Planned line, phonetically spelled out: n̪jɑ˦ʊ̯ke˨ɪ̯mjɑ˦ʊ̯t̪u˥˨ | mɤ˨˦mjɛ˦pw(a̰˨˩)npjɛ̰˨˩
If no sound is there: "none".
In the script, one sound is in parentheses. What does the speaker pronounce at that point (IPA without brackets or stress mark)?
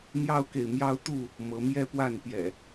a˥˨